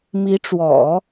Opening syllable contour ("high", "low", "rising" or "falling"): rising